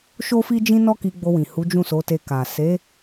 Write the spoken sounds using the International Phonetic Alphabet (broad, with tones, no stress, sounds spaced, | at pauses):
ʃ o˦ f i˦ d͡ʒ ĩ˦ n ɔ˦ k i˧ ɡ͡b o˧ w ĩ˨ h u˨˦ d͡ʒ ũ˦˨ s o˨˦ t e˧ k a˨ s e˨˦